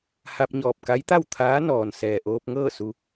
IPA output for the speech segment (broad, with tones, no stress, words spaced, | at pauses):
ha˧p̚ɲɔː˧˩p̚ka˧˥jt̪a˥˨w t̪ʰaː˧˥nɔː˩nsɛː˩ ʔoː˧p̚ŋɤː˥˨ su˧